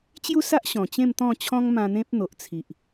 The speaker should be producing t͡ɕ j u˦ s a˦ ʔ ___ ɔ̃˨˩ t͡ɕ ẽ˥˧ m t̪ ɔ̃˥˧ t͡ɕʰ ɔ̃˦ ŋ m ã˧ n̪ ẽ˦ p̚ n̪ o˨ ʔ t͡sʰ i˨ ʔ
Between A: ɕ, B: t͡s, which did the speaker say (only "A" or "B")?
A